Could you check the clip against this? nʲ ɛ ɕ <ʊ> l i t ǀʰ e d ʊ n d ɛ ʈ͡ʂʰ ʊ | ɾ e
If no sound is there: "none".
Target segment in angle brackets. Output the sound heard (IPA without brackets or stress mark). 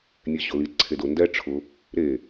ʊ